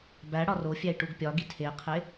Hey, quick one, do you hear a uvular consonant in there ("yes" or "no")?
yes